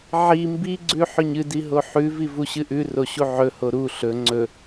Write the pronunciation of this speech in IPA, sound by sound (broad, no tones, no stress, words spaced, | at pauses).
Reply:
ʕi mbiɡ͡ǀʉħɵɲ ɨdiɦo ħʉvivuɕɨ ʔʉroɕu ʕɵho ɾu ɬɵ ŋ͡ǀɵ